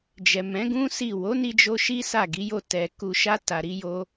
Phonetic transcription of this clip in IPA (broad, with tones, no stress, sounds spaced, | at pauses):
d͡ʒ ɛ˨ m ɛ̃˨˦ ɡ ũ˦ s i˦˨ w o˨˦ n i˧ d͡ʒ o˧ ʃ i˦ s a˦˨ ɡ i˨˦ j o˦˨ t ɛ˧ k u˧ ʃ a˦ t a˧ ɾ i˦ j o˦